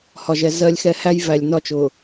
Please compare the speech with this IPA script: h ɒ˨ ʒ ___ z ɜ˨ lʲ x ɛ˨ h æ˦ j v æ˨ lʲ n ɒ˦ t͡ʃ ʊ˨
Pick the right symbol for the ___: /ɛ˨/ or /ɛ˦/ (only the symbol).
ɛ˨